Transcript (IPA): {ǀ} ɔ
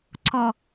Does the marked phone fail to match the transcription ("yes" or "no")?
no